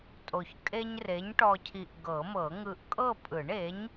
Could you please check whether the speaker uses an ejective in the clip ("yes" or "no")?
yes